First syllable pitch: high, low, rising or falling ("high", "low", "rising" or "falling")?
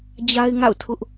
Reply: high